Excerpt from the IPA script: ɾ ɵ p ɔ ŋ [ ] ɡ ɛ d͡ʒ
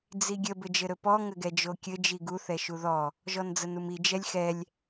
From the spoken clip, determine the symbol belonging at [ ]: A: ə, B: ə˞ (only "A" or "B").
A